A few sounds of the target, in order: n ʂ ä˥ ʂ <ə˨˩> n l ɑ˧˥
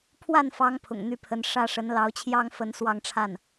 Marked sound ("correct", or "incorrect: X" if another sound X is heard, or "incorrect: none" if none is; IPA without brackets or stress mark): incorrect: ə˧˥